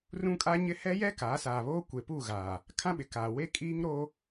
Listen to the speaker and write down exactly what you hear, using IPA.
r ũ˦ kʼ a˦ ɲ ɪ˦ h ɛ˦ j ɛ˦ k aː˨˦ s aː˨ β oː˦ kʷ e˨ p u˦˨ ɣ aː˨ | kʰ ã˦ ɓ ɪ˨ k aː˨ w e˦ kʼ iː˦ ŋ ɾ o˦

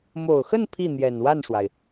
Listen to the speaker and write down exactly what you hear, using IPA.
m o˨˩ ʊ̯ x ə˥˧ n pʰ i˥˩ n̪ j ɛ˨˩ n w a˥˩ n ʂ w a˩ ɪ̯

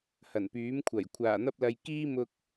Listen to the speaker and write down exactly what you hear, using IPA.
h ɐ˨˩ n p yː˨˥ m kʷʰ ɐ˨˩ j kʷʰ aː˨˩ n̪ ɐ˧ p̚ l ɐ˨ j k iː˥ m ʊ˧ k̚

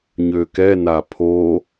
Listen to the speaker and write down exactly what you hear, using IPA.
ɲ ø k ɛ n a pʰ o

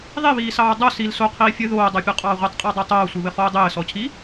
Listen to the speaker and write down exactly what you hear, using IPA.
ðˤ i β iː s ɑː dˤ o s i l s o qʰ iː fʲ ɘ ð oː dˤ ɑ pʲ ɔ qʼ ɑː ʁʷ ɘ tˤ qʼ ɑ dˤ o tˤ oː sʷ i β ɘ χ oː dˤ ɘː s ɔ cʰ i

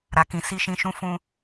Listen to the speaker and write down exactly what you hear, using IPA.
ɾ a˨ k ĩ˨ s i˧ ʃ ĩ˨ ʃ ũ˧ f ũ˧

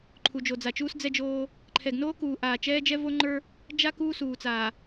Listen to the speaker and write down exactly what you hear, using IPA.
ǃʰ u˨ d͡ʒ o˨ d͡z a˨ t͡ʃ uː˦ s d͡z ɛ˦ d͡ʒ oː˦ | ǃʰ ɛ˨ ɡ n oː˦ k uː˨ ʔ aː˨ t͡ʃ ɛː˦ d͡ʒ ɛ˦ v o˦ ŋ͡ǃ ə˞˦ | d͡ʒ a˦ k uː˦ s uː˨ t͡s aː˨

